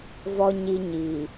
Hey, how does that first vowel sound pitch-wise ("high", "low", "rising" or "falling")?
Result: high